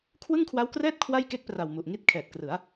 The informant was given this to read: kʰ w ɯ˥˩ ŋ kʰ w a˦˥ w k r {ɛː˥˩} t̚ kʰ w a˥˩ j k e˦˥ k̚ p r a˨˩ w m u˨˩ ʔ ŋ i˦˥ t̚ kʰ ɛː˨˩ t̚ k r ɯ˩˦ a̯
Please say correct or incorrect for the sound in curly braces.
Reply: correct